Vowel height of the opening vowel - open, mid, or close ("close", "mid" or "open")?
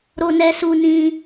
mid